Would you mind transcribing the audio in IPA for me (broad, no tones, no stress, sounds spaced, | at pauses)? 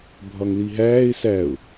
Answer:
bʱ ɒ ŋ l i ɦ æː ɪ̯ s æ ʊ̯